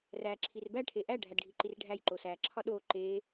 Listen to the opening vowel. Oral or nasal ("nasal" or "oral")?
oral